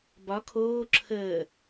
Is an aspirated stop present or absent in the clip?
present